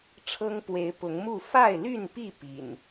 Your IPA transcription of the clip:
ʈ͡ʂʰ ɤ˦ ŋ p w e˨˦ ɪ̯ p ʊ˨˦ ŋ m u˥˨ f a˥˨ ɪ̯ l y˥˨ n p i˥˨ p ḭ˨˩ n

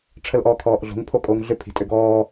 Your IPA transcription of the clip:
ʈ͡ʂʰ ə l ʔ ɔː kʰ ɔː ʔ ɮ o̤ ŋ pʰ o kʼ oː ŋ ɮ ʏ pʰ i̤ tʼ ʏ ɡ ɔː

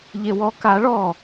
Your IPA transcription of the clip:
ʎ e w ɔ k a ɭ ɔ

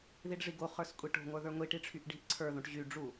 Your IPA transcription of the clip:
ð i ɖ ʐ i ɡ o χ ə˞ s kʷʼ i ʈ o̤ ŋʷ ə˞ ð ə˞ ŋʷ i ʈ i ʈ͡ʂʰ y ʔ ɖ i̤ ʔ ǀʰ ə˞ ð õ ʈ ʑ y ɖ͡ʐ u

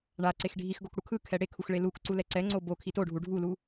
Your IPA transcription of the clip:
ɳ a ǀ e x ɖʱ i x ɡ o k ɽ u kʰ ɯ kʰ ɛ ɽ e kʰ u x ɭ e l u k ǀ u l ɛ ǀ ɛ ŋ͡ǀ o b o kʰ i t o ɖʱ u ɖʱ u l u

